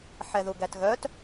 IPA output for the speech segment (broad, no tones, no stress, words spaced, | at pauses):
ħɛðuɡætɣœt